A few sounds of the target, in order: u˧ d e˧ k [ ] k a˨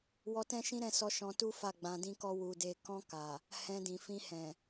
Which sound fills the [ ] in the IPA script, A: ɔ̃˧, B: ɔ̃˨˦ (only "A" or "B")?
A